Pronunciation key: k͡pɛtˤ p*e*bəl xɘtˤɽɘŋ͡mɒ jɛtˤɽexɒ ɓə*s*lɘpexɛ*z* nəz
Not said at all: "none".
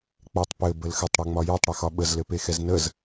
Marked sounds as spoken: ɘ, z, z

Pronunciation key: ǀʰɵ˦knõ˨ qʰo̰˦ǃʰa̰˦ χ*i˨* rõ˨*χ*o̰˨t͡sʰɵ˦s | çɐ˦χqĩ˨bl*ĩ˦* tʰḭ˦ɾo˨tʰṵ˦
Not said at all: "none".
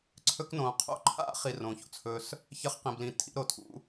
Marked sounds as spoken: i˨, ç, ĩ˨

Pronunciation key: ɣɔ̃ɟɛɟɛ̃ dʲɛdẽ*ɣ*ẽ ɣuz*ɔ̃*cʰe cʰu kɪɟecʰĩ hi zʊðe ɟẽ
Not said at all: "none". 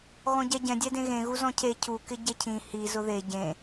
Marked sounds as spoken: ɣ, ɔ̃

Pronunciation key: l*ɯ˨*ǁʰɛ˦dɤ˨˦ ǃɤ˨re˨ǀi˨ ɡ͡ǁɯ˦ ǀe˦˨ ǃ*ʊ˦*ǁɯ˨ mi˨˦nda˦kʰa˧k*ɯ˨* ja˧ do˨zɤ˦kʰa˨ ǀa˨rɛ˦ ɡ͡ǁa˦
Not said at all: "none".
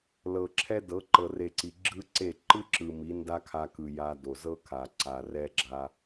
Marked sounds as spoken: ɤ˨, ɯ˦, ɯ˨

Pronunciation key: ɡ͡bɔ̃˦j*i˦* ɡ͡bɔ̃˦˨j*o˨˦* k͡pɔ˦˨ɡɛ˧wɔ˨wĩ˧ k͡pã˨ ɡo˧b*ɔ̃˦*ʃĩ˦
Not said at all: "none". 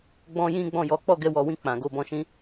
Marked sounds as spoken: ĩ˦, ɔ˨˦, ɔ̃˧

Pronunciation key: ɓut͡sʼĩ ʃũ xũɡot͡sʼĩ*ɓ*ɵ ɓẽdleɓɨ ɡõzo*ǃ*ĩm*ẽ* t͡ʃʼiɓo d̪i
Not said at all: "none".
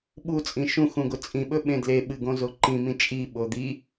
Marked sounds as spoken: ɓ, ǃ, ĩ

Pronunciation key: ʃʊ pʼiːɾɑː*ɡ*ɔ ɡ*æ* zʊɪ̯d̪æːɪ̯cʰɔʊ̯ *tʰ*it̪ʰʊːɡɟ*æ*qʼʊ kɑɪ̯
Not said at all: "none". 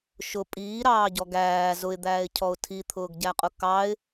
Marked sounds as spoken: ɟ, æː, tʰ, æ

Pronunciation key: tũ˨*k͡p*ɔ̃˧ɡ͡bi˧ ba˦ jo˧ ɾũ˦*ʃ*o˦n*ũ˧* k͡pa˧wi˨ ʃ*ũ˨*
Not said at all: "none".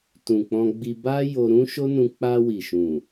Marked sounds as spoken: k͡p, ʃ, ũ˧, ũ˨

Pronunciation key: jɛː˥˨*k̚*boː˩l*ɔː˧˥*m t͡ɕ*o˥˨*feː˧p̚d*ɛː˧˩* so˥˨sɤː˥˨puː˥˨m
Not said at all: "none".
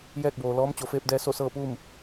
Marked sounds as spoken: k̚, ɔː˧˥, o˩˧, ɛː˧

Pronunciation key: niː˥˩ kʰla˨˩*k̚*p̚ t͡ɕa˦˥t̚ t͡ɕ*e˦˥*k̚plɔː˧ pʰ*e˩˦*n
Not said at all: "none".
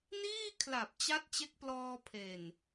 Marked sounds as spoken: none, e˦˥, e˨˩

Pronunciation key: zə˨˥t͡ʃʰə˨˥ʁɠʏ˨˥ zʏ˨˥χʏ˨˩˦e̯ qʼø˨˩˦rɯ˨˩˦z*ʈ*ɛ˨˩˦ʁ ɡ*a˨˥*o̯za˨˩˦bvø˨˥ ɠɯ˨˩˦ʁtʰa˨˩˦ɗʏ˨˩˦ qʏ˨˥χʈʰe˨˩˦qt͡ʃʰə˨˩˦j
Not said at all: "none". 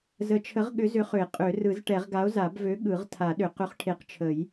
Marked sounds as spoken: ʈ, a˨˥

